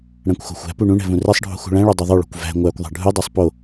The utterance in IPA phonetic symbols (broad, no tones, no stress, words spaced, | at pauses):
ɽæ̃kʷxo̤xʷæ̤pu ɳũɳɛ̤ vũrɛsˤɖʱṳ xṳɭæ̃ɭo dˤɵðˤoɭo̤kʷ væ̤ ŋʷækʷðˤɛ̤ ɖʱudˤæsˤ po